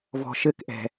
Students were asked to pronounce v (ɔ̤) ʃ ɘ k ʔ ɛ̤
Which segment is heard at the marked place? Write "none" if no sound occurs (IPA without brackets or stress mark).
ɔ̤